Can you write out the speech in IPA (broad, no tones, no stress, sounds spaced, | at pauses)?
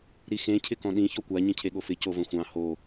ɾ i x ẽ cʰ ɪ k ɔ̃ ɗ ĩ ç ɔ kʷ a ɲ ĩ cʰ e ɠ o f ɪ c o v ə̃ xʷ ɑ̃ h o